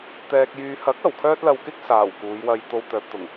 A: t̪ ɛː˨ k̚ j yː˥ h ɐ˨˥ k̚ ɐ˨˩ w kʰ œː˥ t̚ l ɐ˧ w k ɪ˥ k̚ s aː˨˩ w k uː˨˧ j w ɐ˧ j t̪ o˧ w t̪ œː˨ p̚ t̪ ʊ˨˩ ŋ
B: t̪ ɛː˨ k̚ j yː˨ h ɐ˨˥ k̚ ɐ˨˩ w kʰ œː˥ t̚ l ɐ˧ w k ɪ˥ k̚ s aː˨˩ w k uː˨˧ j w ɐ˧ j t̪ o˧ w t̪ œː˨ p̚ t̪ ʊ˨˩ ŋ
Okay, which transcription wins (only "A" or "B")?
B